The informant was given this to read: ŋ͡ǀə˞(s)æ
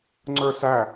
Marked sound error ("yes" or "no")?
no